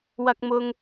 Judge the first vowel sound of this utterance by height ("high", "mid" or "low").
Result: low